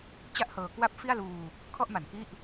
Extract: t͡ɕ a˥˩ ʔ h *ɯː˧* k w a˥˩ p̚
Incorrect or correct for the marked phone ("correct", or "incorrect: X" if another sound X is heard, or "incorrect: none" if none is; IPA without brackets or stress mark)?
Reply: incorrect: ɤː˧